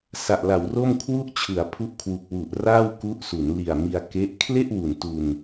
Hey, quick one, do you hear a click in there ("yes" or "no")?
no